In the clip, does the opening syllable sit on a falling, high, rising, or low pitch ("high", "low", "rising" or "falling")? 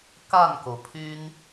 falling